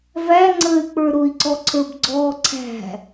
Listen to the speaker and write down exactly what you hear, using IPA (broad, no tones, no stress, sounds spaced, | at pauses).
v æ ŋ͡ǀ əː y̯ k͡p ə˞ ɾ ʊ i̯ ǀ ɔ ǀʰ ə˞ b ɡ͡ǀ ɔː ǀʰ æ̤